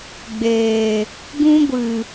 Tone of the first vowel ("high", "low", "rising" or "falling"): low